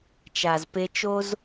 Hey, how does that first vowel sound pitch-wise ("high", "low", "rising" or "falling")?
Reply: low